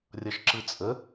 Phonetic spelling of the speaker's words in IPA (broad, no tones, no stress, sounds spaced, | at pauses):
rʲ ʌ ʃ ǁ ɯ t͡sʼ ə